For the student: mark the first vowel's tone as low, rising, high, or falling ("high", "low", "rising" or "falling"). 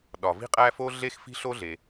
low